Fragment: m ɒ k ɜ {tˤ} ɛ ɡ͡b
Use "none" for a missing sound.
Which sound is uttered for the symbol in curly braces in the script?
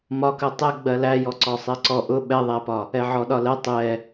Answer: tˤ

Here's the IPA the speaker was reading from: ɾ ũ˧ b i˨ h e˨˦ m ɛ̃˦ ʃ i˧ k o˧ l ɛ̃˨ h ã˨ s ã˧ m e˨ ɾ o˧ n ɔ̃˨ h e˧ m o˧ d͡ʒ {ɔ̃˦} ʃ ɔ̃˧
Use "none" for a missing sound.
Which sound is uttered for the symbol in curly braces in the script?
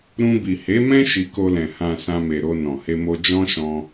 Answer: ɔ̃˦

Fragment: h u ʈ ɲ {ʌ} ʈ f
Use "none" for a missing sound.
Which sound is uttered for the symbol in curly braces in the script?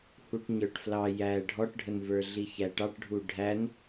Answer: ə˞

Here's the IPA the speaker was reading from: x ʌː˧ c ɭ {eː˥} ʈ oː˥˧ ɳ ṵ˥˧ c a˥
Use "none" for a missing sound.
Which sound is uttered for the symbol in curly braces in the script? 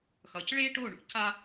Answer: eː˥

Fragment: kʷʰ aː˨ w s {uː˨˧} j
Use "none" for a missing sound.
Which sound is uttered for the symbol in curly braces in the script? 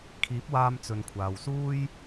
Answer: uː˥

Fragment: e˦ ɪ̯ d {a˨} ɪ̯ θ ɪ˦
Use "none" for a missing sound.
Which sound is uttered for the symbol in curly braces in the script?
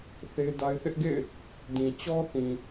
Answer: a˦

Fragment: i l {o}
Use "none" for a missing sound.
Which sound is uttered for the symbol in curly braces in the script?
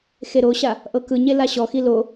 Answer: o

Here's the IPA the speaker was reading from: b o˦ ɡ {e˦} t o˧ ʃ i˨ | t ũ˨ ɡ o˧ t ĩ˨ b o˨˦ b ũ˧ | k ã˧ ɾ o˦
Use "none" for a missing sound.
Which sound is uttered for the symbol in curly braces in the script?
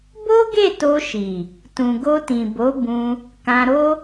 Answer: e˦˨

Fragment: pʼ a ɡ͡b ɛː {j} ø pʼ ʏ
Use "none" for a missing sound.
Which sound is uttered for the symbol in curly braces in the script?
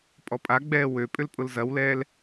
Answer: w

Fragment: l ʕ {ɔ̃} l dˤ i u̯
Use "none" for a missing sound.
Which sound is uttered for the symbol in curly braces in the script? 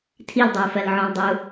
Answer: ɔ̃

